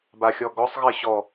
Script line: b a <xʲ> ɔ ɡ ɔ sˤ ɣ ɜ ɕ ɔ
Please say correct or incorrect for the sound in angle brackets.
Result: correct